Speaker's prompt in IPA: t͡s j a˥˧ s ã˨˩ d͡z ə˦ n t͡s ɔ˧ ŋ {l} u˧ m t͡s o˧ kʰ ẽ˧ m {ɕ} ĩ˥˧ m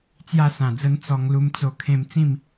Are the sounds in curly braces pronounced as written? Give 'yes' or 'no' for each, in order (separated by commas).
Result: yes, no